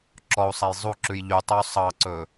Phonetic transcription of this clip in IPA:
ǁ ɔ u̯ sˤ æ j zˤ u ǁ ʉ j ʎ y tˤ ø y̯ sˤ ɑ ǀ ɵ

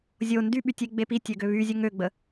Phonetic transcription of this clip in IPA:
zʲ o n d y ɓ y tʲ e ɡ͡b e p i tʲ ø ɡ ø β y zʲ ə ŋ ø ɡ͡b ə

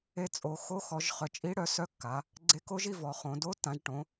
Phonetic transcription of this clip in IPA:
e˧˥ t͡sʼ o˩˧ x o˧˥ x ɔ˩˧ ʒ χ œ˩˧ t͡ʃʼ i˧˥ ɽ œ˩˧ s œ˧˥ kː a˩˧ | ɡ͡ǀ e˧˥ k o˧˥ ʒ i˩˧ v ɔ˩˧ χ õ˩˧ d o˧˥ tː ã˩˧ ʒ ʈ õ˩˧

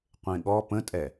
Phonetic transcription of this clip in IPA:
qʷ ẽ ɠ ɔ p ə̃ tʼ ɛ

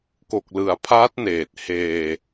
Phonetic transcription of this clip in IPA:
k o˨˩ k̚ l ɯ˩˦ a̯ pʰ aː˦˥ t̚ n eː˨˩ t̚ h eː˧

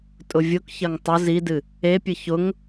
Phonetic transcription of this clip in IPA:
tʼ ʊ vʲ ʊ k ç ɐ ŋ tˤ ʊ z i d ɨ | e pʲ ɨ ç ʊ ŋ

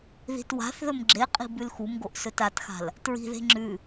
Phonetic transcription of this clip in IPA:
ð i̤ t w a̤ θ ð ɵ m ɡ͡ǁ e qʼ i̤ b ʉ l x u m ɡ o ʔ s ɵ t a t x a̤ l | t ɹ i̤ ð e̤ ŋ͡ǁ ʉ

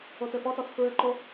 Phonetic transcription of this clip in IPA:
o t ɘ f ɔ t ɔ t f ɹ ɘ ǃ o

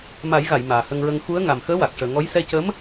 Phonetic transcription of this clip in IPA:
m a˨˩˦ j ɣ a˨˩˨ j m aː˨˩ h ə˧ ŋ ɹ ə˧ ŋ x u˧˥ ə̯ ŋ a˨˩ m x əː˧˥ w a˨˩ k̚ ʂ əː˨˩ ŋ ɔ˧˥ j s ɛ˧ c ə˧˥ m

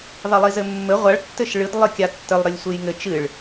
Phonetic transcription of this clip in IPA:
ðˤ i lˠ i z ɘ mː ɘ ʁʷ a ɭ tː ɘ ʃ ɭ ɨ d lˠ ɘ kʲ a tː ɘ lˠ ɾ ɘ lʲ sʷ ɨ j ŋ ɘ t͡ʃ ɨ ɭ

